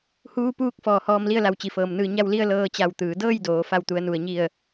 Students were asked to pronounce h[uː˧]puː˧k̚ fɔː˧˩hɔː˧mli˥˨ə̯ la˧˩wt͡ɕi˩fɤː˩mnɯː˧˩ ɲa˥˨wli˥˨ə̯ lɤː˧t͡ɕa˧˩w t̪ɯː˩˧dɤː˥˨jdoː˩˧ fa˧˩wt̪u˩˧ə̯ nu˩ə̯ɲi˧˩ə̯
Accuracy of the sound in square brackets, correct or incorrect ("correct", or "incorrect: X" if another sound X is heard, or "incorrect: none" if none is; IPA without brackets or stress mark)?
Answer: correct